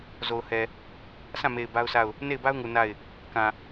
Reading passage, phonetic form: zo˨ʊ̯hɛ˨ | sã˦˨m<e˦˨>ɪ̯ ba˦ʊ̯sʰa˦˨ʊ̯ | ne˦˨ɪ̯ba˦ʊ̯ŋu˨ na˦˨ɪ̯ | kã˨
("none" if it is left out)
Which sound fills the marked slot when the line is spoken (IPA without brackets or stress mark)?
e˨